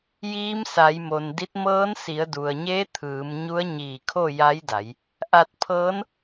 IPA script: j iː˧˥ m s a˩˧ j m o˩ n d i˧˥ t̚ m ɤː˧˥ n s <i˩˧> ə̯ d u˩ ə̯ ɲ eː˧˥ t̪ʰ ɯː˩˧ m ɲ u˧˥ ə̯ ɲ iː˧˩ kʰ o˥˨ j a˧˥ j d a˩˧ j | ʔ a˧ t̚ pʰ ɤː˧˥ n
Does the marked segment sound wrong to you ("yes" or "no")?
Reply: no